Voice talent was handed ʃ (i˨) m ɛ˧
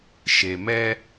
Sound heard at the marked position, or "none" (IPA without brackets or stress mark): e˨